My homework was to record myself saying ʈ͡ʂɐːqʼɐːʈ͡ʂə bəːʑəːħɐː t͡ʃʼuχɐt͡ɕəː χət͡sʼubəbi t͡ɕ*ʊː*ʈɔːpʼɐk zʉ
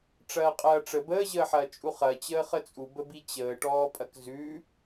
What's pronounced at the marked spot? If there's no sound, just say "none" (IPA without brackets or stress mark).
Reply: əː